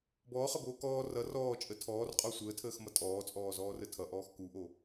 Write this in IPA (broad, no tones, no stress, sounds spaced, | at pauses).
b ɔː χ ʌ b oː k ɔː r ʌ r ɔː t͡ʃʼ ə tʰ ɔː r qʼ ɔ sʷ əː tʰ əː x m ʌ tʼ ɔː t͡sʼ ɔː z ɔː r ə tʰ ʌ ʔ ɔː x k u ʔ o